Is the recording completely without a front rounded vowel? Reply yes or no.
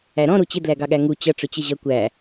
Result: yes